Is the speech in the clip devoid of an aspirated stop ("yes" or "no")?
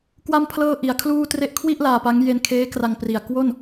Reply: no